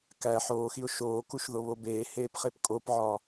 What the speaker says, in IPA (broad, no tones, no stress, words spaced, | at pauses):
kæ ħoːxiʊ̯ ʃoːkuʃ ðoβobeːheːp χepkʼopʕɒ